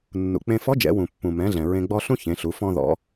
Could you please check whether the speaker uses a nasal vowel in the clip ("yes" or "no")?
yes